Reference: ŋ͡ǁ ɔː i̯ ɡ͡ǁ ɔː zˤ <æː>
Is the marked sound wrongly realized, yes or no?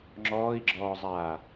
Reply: yes